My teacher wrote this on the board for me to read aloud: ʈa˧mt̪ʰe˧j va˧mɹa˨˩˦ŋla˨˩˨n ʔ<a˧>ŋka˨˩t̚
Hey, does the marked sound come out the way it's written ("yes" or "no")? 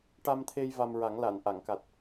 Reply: no